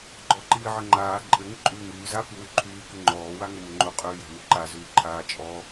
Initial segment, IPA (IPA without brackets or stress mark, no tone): ɡ͡ǃ